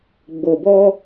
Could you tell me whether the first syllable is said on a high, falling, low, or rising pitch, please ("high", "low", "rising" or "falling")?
low